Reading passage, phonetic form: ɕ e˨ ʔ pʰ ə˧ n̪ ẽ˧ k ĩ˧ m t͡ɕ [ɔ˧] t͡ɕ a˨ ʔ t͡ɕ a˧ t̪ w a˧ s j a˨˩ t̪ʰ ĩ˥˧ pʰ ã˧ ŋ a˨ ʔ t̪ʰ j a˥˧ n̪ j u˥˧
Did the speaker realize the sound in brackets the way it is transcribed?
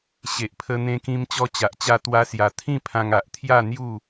yes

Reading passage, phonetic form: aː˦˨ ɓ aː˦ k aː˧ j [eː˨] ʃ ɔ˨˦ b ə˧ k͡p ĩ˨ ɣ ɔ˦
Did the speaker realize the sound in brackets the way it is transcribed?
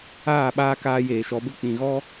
yes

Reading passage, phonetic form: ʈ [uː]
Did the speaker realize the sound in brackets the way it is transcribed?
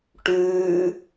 no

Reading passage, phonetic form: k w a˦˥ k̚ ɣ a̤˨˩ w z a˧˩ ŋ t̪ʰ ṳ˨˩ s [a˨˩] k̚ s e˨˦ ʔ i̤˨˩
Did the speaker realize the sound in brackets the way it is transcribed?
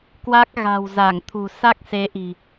no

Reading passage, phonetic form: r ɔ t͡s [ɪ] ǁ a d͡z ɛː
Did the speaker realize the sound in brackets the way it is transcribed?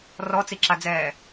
no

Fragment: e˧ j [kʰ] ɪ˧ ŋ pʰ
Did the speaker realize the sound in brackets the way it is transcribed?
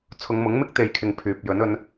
yes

